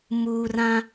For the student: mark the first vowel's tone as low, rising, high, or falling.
low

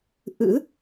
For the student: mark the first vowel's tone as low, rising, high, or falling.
rising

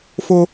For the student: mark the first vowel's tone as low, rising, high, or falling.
high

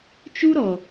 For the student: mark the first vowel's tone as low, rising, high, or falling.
high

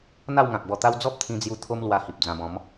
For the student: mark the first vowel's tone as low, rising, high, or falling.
falling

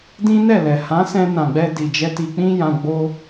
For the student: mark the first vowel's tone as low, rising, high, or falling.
high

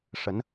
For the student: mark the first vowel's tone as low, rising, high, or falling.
rising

